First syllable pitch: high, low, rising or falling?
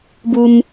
high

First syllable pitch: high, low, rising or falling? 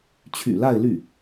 low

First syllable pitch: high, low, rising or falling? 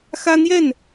high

